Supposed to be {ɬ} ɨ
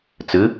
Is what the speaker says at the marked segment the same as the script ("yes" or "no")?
no